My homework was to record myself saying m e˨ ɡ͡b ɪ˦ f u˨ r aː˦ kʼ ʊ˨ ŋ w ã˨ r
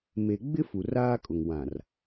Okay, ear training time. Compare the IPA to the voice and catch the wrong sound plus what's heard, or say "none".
none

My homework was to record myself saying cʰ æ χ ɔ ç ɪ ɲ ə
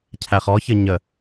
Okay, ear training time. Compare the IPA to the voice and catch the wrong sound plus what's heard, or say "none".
ɪ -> ə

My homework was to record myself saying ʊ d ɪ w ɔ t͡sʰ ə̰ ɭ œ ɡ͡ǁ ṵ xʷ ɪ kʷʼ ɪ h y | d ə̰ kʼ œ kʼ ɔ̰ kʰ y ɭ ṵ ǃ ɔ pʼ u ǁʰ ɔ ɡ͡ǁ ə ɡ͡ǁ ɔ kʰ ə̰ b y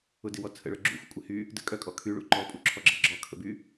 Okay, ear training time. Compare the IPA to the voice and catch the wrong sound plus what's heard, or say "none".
ɔ̰ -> ɔ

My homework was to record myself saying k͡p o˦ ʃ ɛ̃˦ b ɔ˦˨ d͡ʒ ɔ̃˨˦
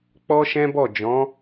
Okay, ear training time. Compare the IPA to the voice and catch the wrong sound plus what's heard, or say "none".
o˦ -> ɔ˦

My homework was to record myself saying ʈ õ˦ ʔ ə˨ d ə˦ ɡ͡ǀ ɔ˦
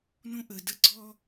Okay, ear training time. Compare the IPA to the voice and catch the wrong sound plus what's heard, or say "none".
ʈ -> n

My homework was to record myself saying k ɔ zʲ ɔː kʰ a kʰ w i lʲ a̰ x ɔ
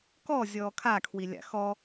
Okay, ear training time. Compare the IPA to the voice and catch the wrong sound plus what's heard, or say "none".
none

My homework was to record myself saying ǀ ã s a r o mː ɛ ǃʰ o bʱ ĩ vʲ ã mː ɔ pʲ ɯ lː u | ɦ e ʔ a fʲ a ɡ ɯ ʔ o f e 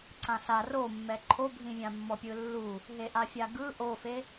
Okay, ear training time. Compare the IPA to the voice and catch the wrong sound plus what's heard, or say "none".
none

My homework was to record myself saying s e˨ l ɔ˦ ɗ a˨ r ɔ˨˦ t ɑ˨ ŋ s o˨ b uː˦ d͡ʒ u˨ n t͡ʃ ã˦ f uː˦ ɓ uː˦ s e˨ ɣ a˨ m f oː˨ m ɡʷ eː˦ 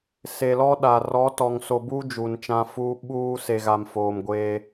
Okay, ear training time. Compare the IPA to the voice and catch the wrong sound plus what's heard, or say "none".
ɑ˨ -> ɔ˨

